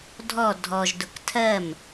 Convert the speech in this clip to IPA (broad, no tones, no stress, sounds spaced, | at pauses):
dʱ ɔ dʱ ɔ ʒ d ʊ k tʰ ɜ m